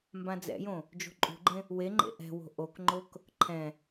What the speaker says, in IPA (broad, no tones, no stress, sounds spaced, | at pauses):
m b ã d͡z ɛ̰ j õ | d͡ʒ o̤ ǃʼ ṳ ɡ͡ǃ ẽ | w e ŋ͡ǃ ḛ ʔ ɛ̤ w o̤ ʔ o k ŋ͡ǃ o k | ǃʰ ɛ̃